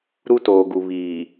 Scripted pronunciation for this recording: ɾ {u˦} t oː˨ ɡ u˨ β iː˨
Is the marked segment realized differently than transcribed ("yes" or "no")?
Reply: no